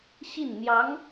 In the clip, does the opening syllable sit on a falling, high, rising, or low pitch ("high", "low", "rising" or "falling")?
falling